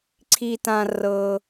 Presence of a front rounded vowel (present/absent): absent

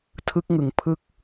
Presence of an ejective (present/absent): absent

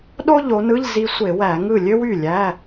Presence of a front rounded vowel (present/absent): present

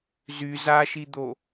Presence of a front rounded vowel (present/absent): present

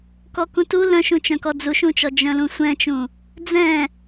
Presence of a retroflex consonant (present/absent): absent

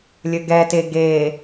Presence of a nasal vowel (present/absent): absent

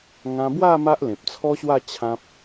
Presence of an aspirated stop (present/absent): present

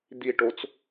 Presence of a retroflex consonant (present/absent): present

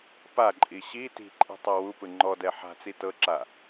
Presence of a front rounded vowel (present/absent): absent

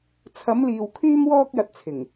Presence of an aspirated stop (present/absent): present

